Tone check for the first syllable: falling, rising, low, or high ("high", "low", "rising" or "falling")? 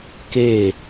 falling